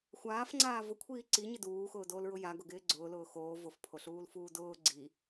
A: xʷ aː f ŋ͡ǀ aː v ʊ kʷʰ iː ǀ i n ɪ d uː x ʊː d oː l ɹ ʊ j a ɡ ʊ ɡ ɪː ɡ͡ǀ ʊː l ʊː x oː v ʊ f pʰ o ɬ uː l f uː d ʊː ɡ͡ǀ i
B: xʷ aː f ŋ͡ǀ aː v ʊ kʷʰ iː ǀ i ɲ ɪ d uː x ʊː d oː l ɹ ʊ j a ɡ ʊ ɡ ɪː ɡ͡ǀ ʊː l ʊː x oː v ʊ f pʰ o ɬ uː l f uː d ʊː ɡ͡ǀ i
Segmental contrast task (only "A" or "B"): B